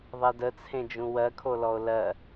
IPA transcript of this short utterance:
ðˤedət͡sʰẽd͡ʒũ wɜkʰolɔo̯ lɜ

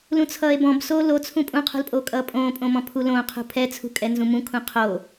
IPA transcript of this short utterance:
lũt͡sʰʌːe̯bɔ̃b soːlot͡sʰũ pʼũqʰṳlpʼoː kʼʌːpʼõːpʼõmɔ̃ pʰulõqʰṳ pʰɛt͡sʰṳkʼɛ nzũmũkʰũ qʰo

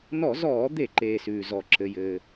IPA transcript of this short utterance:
nɔ˧˩˧zɔː˧˩˧d̪e˧˩˧ǃeː˩ sʉː˩zɔ˩ǁɘ˩jɘː˩

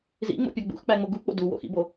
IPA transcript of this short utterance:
zḭŋ͡mo̰pʲɒ ɡ͡bṵxk͡pæŋ͡mo ɡuk͡po̰ duwo̰xḭbo

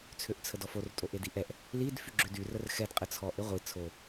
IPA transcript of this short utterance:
t͡sʰøʔt͡sʰədɔfor tʼoʔediʔɛʔ | lid fyɡ͡ǁødy rərxɛd qʼət͡sʰɔʔ eʁʷi t͡sʰo

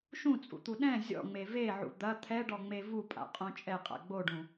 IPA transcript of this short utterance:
ʃũt͡sʼṵt̪u ɗɛ̃ zʲɔ̰ŋ͡me veʕṵ d̪ɐ t̪ʰɛɖɔŋ͡me vupʼa̰qʼõ t͡ʃʼɛqʼa̰ ɡ͡boɖũ

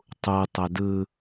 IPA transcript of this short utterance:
tˤu tˤədɯ

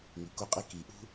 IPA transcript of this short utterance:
ŋi˩ko˦qʼi˦ ki˩ʔṳ˦

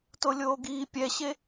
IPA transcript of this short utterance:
tolʲoːɡiː pʲɛɕe

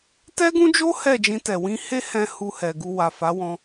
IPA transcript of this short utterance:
tɛ˦ɡũ˦d͡ʒo˦ hɛ˦˨d͡ʒĩ˧tɛ˨ wĩ˧he˦hɛ̃˧ hu˧hɛ˨ ɡu˧ wa˨fa˨˦wɔ̃˧

